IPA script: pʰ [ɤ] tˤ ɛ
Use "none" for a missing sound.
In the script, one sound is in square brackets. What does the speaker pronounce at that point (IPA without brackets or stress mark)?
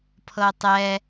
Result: ɤ